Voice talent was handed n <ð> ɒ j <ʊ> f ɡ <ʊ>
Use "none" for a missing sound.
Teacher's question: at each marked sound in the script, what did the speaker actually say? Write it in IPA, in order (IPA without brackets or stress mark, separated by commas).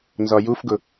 z, u, ʊ